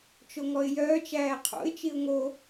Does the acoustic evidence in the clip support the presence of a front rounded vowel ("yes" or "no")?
yes